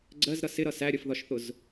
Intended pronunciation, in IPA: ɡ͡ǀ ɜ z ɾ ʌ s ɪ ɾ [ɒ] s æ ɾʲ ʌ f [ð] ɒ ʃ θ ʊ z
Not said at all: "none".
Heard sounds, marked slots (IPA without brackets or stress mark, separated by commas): ʌ, ð